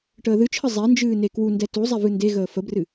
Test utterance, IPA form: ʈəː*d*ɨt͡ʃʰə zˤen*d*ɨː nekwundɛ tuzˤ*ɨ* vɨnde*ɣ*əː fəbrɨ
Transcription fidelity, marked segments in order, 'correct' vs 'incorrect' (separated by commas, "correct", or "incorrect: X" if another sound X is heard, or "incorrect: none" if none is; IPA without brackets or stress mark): incorrect: ð, incorrect: d͡ʒ, incorrect: ɛ, correct